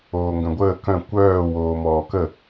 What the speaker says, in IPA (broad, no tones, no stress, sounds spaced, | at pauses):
oː ŋ ɡ œ̃ ɡʷ əː k œ̃ kʷ œː w oː m ɔː k ə